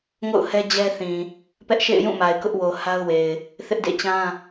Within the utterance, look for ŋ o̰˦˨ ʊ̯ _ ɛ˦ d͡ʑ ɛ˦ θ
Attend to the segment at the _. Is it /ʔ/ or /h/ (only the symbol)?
h